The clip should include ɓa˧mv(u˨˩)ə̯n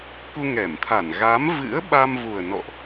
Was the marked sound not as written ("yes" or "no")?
no